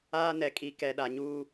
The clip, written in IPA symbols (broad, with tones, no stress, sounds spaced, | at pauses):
aː˦ n ɛ˨ kʼ i˨˦ k ɛ˨ ɗ a˨ ɲ uː˦